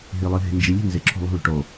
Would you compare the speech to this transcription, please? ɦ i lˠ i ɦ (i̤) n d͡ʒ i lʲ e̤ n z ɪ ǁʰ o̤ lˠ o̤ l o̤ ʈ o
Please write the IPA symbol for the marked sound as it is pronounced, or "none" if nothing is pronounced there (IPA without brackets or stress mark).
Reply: e̤